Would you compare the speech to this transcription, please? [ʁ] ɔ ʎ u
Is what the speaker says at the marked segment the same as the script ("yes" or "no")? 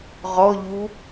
yes